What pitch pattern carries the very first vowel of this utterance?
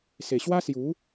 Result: low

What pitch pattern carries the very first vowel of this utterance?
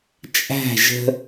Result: falling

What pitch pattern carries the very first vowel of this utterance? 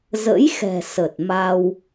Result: rising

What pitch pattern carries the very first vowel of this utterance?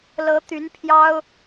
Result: rising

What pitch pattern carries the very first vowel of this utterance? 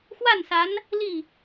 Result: falling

